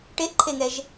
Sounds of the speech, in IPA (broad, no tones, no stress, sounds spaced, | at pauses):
ʈ e ʔ ǃʰ e ŋ ɛ ʒ